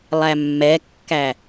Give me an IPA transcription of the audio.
lˠ æ mː ɛ kː æ

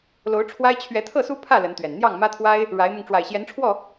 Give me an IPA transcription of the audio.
l o˨˦ ʊ̯ ʈ͡ʂʰ w a˦ ɪ̯ t͡ɕʰ ɥ ɛ˨˦ t̪ʰ ɤ˥˨ s u˦ pʰ ä˥˨ l ə˨˦ n t̪ ɥ ɛ˨˩ n n̪ j ɑ˥˨ ŋ m ä˦ t̪ʰ w a˦ ɪ̯ | ɻ a˨˦ ɪ̯ m ʊ˧ ŋ ʈ͡ʂ w a˨˩ ɪ̯ ɕ j ɛ˨˦ n ʈ͡ʂʰ w ɔ˥˨

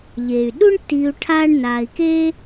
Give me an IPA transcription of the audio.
ʎ eː˩ y̯ ɗ u˦ ɳ tː iː˨ u̯ ʈʰ aː˦ ɳ n aː˨ i̯ k e˥

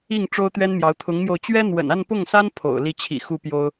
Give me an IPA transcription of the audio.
i˥˩ ŋ ʈ͡ʂ o˥ ʊ̯ t̪ ɥ ɛ˥ n m j ɑ˧˥ ʊ̯ t̪ʰ ʊ˧˥ ŋ m j o˧ ʊ̯ t͡ɕ ɥ ɛ˥ n̪ w ə̰˨˩ n a˥˧ n p ʊ˥˩ ŋ s a˥ n pʰ o̰˨˩ ʊ̯ l i˥˩ t͡ɕʰ ḭ˨˩ x u˥˩ p j o˥ ʊ̯

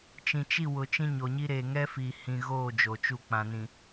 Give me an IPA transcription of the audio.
t͡ʃ ĩ˨ t͡ʃ i˦˨ w ʊ˨ t͡ʃ ĩ˦ ɲ o˨ ɲ i˦ ɾ e˨ ŋ ɛ˦ f i˨ h ĩ˨ ɣ oː˦˨ d͡ʒ o˨ t͡ʃ u˦˨ k͡p ã˨ n ĩ˨

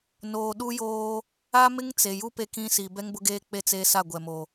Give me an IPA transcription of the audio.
n oː˨ ɗ u˦ j oː˦ | a˦ m ɪ˦ ŋ t͡s e˨ j u˦ p e˦ k ĩ˦ s i˨ b ɛ˦ ŋ b ʊ˦ ɡ eː˦ k͡p e˦ t͡s eː˦ s a˦˨ ɡʷ ɛ˨ m o˨

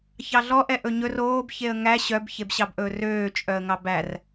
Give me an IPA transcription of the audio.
ç ɑ ɮ ɔ ʔ ɛ ʔ ɵ ɲ ɵ r oː b ç e ə̯ ŋ æ ɕ œ b ç e b ɕ ɑ b ʔ ɵː r øː t͡ʃʼ œ ə̯ ŋ ɑ b æ r

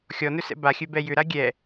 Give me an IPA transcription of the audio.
xʲ ɔ n ɵ s ɛ̰ b a xʲ ɵ b ɛ j ʏ ɾ a ɡʲ ɛ

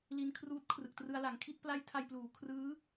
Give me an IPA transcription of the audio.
l i˦˥ n kʰ r uː˦˥ t̚ kʰ r ɯ˨˩ k̚ t r ɯ˧ a̯ l a˩˦ ŋ kʰ i˥˩ t̚ p l a˦˥ j tʰ a˧ j p l uː˩˦ kʰ r ɯː˦˥

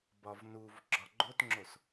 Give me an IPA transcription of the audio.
b ɒ v n u v ɡ͡ǁ ɒ ɡ͡ǃ o t ŋ͡ǁ o s

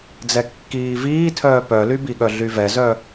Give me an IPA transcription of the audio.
d͡z ɛ kː iː v iː tʰ œː p œ l y b i ɠ œ ɮ y v ɛ z œ

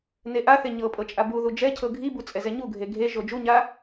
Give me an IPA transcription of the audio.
n e ʔ a θ e ɲ ɤ pʼ ɤ t͡ʃʼ a b u ð u d͡ʒ ɛ cʰ ɤ ɡʱ i b u t͡sʼ ɛ z ɛ ɲ u ɡʱ e ɡʱ e ʒ o d͡ʒ u ɲ a

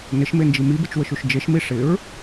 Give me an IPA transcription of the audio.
n ɪ ʃ m e n d͡ʒ i m i b ɪ t͡ʃ w ə ʃ u ʃ d͡ʒ e ʃ m i ʂ ɪ ɹ

